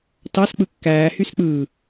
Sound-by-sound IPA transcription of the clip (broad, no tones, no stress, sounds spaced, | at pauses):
t ɑ s k͡p ɯ kː æː h y s k͡p ɯː